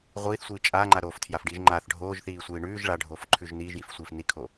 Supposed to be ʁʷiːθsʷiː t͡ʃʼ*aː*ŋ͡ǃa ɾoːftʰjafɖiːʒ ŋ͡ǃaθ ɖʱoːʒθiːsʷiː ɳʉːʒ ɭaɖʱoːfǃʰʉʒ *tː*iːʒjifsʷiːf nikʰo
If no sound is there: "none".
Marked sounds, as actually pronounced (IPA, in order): aː, n

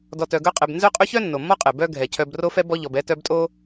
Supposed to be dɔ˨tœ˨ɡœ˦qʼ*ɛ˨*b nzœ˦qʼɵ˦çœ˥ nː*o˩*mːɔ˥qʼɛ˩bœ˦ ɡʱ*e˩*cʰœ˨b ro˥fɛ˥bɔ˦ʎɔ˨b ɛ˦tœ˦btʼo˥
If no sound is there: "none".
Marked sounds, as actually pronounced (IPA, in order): ɛ˨, o˩, ɛ˩

